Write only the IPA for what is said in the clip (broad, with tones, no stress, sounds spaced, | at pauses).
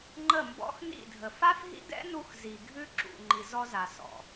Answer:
ŋ͡ǃ ə˦˨ m b ɔ̰˦ x n ḭ˦˨ dʱ ə˨ f a˦ f ɦ ḭ˦ d ɛ̰˦ n u˧ x z i˨ ɡʱ ʉ˦ ǁ ṵ˨ ŋ͡ǃ i˨ z ɔ˧ z a˨ s ɔ̰˨